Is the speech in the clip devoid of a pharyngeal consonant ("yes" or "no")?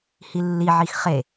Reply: no